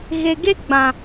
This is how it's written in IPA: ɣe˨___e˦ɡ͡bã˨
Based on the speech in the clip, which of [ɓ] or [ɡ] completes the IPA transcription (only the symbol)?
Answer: ɡ